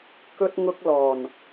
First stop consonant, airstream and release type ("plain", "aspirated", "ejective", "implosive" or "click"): plain